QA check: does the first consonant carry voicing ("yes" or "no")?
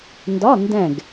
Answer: yes